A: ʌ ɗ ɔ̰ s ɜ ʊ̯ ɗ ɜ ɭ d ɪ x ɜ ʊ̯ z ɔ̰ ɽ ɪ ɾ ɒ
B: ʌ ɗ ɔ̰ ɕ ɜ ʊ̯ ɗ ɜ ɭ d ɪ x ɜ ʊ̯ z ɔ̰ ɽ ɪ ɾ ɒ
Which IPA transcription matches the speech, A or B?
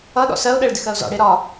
A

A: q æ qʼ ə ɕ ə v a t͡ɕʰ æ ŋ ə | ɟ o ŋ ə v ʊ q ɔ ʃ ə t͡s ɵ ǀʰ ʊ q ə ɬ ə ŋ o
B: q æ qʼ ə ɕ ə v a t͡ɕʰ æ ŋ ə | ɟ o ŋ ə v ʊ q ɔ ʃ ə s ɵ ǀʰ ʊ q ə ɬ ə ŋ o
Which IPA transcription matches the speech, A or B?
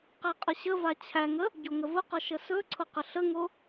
B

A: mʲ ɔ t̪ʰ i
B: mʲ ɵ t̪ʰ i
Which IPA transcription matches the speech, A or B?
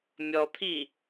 A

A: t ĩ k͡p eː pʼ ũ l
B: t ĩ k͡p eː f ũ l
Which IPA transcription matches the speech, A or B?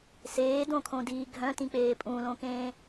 A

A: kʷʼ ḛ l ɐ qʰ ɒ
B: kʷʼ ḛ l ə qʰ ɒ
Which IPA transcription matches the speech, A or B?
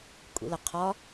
B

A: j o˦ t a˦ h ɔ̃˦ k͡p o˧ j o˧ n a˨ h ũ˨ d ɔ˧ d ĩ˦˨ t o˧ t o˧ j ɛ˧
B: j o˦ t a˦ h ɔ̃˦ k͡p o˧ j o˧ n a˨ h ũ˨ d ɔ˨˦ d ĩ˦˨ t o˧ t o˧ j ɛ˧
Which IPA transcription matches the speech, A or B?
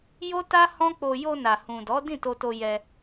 B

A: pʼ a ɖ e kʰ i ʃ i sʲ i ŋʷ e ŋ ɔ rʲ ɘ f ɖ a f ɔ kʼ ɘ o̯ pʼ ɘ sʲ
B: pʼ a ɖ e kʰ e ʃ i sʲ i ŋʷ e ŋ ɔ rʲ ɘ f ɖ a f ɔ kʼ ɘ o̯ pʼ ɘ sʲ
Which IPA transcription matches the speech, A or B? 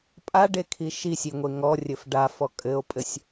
A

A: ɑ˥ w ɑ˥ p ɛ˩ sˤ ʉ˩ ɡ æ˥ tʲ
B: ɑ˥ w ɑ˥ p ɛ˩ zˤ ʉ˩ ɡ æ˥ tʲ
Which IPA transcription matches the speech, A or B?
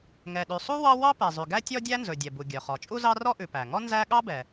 B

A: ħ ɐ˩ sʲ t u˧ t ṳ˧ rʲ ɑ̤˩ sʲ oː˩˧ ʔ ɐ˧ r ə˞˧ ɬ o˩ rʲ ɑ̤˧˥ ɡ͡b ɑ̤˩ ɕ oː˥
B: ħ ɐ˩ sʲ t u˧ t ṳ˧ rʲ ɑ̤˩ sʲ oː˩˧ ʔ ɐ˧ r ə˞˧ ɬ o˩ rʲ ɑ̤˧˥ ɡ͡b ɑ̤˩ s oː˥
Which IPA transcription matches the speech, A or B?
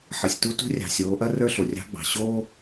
A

